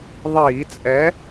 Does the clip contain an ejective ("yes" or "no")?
yes